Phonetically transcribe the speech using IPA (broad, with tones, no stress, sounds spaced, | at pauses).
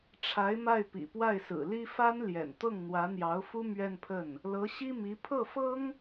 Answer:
ʈ͡ʂʰ a˧˥ ɪ̯ m a˥˩ ɪ̯ p ḭ˨˩ p w a˥˩ ɪ̯ s ɹ̩˨˩ l i˥ f a˥ n l j ɛ̰˨˩ n t̪ ɤ˥˩ ŋ n̪ w ä˧˥ n̪ j ɑ˧˥ ʊ̯ f u˥ m ɥ ɛ˥˧ n pʰ ə˥˩ n | l ɤ˧˥ ɕ i˥ m i˧˥ pʰ ɤ˥˩ f ɤ˥ ŋ